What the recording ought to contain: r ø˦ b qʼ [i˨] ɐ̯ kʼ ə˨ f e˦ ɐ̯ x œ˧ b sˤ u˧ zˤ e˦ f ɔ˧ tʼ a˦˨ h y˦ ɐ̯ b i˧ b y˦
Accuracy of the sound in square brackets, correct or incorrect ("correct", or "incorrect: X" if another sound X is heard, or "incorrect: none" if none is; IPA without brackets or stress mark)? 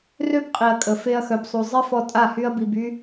correct